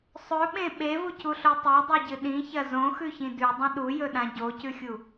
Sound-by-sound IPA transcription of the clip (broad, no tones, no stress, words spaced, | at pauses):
sˤɵɓẽ ɓevucʰuɬo tˤedˤiɟɨ ɗĩçɐ zõxʉçĩ dʉdˤɐ̃ ɗujɵɗã ɟocʰʉxʲu